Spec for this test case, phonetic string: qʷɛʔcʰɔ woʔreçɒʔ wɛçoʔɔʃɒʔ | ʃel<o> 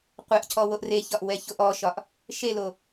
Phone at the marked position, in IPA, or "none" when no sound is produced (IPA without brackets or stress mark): o